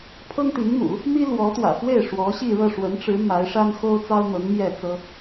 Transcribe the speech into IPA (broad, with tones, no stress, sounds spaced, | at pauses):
pʰ ɤ˥ ŋ t̪ i˧˥ ŋ m ṵ˨˩˦ | m i˥ l w ɔ˧˥ t̪ w ä̰˨˩ f w e˥˩ ɪ̯ ʂ w ɔ˧˥ ɕ i˥˧ ɻ ɤ˥˩ ʂ w ə˧˥ n ʈ͡ʂ ɻ̩˧˥ m a˧˥ ɪ̯ ʂ a˥ n x o˥ ʊ̯ t͡s ɑ˥ ʊ̯ n̪ ɤ˧˥ ŋ m j ɛ˥˩ t͡s ɤ˥